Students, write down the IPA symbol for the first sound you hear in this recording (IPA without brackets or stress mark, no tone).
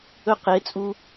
ɵ